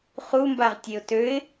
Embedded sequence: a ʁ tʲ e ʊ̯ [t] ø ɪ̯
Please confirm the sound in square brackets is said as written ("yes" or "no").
yes